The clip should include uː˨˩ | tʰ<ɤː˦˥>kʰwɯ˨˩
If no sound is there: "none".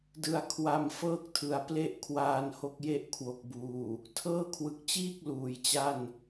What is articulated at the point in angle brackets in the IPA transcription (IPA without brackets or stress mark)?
ɤː˥˩